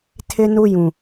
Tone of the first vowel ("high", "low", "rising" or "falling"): high